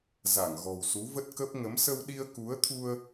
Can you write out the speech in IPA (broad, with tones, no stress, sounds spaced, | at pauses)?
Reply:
z a˧˩ ŋ ɣ ɔ̤˨˩ w s u˨˦ v ə˦˥ t̚ k ə˦˥ p̚ ŋ ə˨˦ m s ə˧ w ɗ i˧ ə̯ k u˨˦ ə̯ t̪ʰ u˧ ə̯